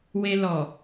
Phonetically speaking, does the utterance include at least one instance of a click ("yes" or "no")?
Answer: no